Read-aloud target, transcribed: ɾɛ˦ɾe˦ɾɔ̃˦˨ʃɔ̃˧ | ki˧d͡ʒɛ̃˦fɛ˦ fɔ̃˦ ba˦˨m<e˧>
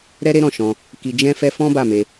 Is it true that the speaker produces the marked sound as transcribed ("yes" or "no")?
yes